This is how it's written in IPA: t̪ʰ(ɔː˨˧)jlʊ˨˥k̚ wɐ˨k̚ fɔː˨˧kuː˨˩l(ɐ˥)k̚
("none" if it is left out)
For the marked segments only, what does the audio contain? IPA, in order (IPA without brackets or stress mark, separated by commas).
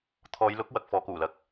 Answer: ɔː˨˧, ɐ˨˥